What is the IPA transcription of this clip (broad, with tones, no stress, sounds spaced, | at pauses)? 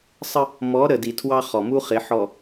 sˤ ə˦ | m ɔ˨˦ ɾ ə˨ d i˨ tʰ w ɑ˦ χ ɔ˨ m u˦ χ ɪ˨˦ ħ ɔ˨